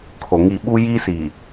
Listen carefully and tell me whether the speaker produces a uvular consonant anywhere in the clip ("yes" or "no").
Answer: no